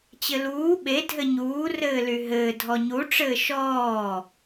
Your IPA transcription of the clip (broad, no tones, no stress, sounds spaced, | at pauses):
t͡ɕ ɘ l uː ɓ e dʱ ɘ ɲ uː r ɘː l y ɦ ɘː dʱ ɔ ɲ u ʈ͡ʂ ɘː ʃ ɔː